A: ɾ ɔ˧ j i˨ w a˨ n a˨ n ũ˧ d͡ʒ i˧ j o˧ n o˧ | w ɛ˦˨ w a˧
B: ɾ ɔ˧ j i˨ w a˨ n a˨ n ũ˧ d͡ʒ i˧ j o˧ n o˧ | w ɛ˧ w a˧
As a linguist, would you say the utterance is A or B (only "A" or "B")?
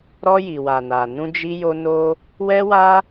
B